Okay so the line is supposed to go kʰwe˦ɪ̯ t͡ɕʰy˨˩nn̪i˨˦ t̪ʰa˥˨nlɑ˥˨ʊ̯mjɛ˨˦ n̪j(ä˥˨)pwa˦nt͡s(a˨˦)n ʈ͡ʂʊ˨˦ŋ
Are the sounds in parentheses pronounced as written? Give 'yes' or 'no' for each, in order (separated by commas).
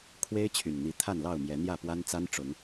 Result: yes, no